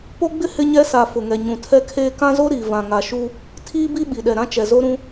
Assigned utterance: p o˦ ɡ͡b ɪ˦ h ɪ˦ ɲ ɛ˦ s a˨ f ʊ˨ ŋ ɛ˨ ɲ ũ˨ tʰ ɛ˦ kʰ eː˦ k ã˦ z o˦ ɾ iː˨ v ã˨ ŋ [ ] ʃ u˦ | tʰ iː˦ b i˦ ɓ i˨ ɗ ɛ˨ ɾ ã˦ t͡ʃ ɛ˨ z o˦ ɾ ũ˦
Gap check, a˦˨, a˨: a˨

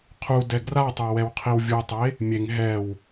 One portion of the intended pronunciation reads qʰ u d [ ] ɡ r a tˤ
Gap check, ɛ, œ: ɛ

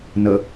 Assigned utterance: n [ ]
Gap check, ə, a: ə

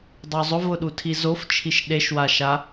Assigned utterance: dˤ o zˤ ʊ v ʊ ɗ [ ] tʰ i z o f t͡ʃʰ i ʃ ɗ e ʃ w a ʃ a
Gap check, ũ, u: u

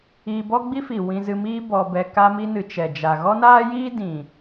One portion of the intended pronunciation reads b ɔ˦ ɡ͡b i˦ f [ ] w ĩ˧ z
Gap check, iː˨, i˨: i˨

